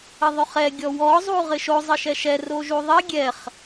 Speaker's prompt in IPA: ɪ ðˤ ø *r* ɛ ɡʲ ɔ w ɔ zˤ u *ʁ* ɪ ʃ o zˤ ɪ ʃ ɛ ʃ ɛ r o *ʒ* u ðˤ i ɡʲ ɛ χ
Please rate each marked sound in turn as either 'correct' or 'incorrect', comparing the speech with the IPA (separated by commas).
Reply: incorrect, correct, correct